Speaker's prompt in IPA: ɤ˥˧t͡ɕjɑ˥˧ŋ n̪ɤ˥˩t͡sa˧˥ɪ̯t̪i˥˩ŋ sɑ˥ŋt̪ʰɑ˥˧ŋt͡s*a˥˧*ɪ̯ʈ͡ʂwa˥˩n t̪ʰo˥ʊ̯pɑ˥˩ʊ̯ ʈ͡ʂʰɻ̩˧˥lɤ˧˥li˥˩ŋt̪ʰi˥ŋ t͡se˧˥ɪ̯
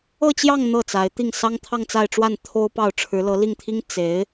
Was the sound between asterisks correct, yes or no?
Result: yes